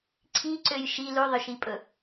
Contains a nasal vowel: no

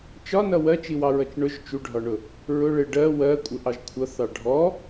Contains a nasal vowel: no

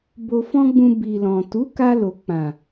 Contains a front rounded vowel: no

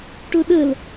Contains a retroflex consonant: yes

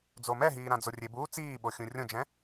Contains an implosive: yes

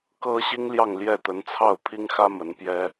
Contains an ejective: no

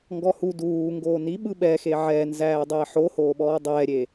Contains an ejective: no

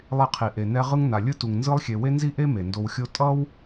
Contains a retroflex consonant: no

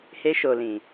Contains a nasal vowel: yes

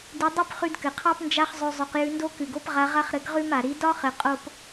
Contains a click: no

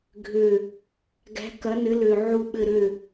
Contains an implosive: yes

